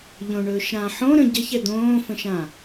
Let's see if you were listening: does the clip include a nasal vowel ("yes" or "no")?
yes